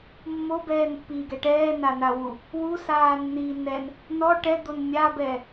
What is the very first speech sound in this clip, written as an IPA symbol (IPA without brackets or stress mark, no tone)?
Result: mː